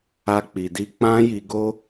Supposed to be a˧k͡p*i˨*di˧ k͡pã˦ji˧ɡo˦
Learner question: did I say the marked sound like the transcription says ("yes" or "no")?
yes